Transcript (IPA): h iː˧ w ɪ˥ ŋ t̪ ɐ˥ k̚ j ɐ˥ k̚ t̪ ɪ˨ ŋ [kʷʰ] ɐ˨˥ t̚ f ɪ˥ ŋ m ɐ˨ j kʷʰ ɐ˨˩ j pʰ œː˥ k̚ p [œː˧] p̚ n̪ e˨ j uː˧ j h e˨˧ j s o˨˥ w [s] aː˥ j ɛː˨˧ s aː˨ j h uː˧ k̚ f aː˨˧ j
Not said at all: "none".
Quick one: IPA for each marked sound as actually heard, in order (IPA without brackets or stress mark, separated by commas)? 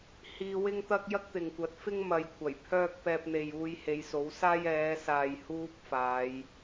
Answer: kʷ, ɛː˧, s